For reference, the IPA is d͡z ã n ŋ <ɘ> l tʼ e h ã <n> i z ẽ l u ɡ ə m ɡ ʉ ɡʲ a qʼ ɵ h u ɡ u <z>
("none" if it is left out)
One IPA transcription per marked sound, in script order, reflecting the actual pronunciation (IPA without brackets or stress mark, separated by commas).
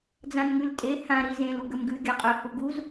ʉ, ɾ, z